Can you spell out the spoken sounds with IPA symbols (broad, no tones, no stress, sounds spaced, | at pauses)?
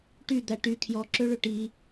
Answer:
ʈ y d̪ æ ʈ y kʰ j ɔ ǁ ø ɭ ø ʈ i